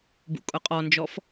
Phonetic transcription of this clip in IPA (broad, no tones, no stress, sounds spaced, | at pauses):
b ṵ kʼ ʊ qʼ ɔ n d͡ʒ ɔ f